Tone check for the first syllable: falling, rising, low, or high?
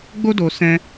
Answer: high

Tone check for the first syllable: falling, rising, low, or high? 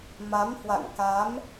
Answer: rising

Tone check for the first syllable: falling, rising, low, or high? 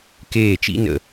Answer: falling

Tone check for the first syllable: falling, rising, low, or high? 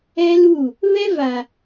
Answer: high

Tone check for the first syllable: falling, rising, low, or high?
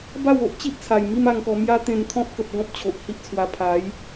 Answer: falling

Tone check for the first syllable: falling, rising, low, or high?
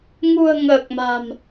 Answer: low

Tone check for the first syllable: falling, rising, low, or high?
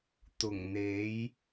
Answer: low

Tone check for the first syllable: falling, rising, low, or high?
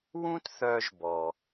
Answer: high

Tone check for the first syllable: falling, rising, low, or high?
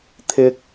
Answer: low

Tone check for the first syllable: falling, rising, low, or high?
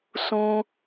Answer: high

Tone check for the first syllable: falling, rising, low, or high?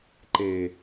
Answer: low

